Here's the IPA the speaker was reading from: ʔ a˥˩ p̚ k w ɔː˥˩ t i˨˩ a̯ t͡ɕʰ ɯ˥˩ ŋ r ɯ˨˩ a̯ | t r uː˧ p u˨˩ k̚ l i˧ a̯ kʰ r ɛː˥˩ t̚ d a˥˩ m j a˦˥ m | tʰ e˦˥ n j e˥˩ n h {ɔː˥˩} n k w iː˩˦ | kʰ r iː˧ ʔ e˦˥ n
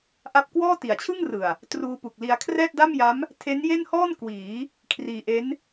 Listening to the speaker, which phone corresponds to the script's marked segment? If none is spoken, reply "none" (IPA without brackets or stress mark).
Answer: ɔː˥˩